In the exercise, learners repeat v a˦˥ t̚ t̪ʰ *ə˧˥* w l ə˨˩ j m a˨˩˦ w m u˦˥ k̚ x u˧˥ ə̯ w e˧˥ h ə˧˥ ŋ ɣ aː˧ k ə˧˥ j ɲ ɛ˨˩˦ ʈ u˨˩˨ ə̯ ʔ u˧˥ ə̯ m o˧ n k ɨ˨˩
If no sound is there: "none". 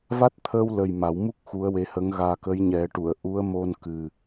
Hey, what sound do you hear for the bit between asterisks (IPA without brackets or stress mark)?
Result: ə˧